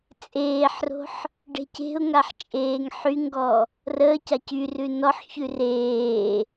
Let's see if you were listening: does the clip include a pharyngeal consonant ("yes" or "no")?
yes